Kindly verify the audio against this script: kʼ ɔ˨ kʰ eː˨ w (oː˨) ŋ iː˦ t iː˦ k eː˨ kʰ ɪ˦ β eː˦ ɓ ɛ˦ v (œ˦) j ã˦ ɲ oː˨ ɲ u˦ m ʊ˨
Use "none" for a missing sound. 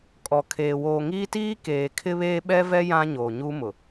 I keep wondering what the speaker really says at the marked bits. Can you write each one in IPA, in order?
oː˨, ɛ˦

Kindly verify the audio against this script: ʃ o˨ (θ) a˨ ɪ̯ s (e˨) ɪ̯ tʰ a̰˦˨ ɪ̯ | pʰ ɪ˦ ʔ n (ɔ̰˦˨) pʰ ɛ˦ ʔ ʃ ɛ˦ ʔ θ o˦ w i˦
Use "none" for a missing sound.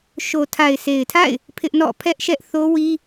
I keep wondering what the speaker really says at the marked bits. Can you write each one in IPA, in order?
tʰ, e˨, ɔ̰˦˨

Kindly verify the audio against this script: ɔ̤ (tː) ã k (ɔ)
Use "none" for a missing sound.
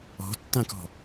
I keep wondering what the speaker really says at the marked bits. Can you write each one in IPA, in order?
tː, ɔ̤

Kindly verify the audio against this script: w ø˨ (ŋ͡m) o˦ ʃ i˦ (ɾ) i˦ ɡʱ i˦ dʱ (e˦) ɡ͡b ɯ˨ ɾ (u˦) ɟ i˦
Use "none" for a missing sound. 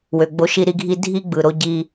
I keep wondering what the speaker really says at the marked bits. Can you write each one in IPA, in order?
ɡ͡b, ɾ, i˦, o˦

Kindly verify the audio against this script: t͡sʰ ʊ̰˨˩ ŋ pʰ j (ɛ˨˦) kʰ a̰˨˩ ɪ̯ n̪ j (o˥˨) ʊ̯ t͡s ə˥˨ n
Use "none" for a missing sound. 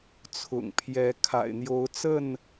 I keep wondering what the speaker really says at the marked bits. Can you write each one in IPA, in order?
ɛ˨˦, o˨˦

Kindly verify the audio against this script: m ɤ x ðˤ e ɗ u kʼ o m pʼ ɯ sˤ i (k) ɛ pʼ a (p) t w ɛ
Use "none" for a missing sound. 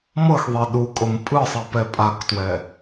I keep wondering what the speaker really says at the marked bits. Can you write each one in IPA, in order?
p, k

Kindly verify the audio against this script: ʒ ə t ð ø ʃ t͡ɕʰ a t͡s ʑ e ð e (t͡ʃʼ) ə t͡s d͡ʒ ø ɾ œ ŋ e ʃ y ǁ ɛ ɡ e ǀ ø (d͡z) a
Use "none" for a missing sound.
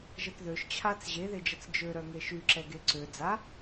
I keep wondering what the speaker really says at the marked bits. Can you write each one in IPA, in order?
d͡ʒ, d͡z

